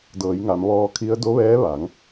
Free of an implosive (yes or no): yes